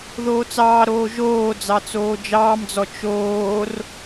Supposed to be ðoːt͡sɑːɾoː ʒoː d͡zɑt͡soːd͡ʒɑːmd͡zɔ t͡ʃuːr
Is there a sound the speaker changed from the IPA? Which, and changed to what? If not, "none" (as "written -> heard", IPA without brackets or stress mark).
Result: uː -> oː